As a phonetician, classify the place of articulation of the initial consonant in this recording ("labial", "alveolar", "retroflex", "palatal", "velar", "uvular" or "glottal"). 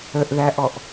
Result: glottal